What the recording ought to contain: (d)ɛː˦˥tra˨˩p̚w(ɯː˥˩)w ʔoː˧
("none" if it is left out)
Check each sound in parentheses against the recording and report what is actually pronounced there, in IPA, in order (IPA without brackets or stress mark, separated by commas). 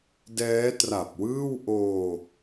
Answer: d, ɯː˥˩